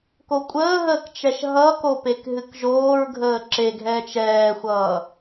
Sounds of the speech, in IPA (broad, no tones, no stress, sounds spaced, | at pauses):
k o kʷʼ əː ɦ əː k t͡ʃ ɛ ʃ ɦ ʌ k o p e k ɦ ɨ k ʒ oː ɹ ɡʱ əː ǁ e ɡʱ ɛː t͡ʃ ɛː xʷ ʌː